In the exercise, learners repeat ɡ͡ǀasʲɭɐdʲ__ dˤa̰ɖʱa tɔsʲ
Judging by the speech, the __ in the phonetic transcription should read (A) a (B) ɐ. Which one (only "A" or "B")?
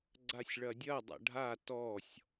B